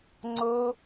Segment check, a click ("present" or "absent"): present